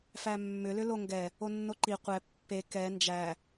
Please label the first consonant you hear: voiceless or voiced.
voiceless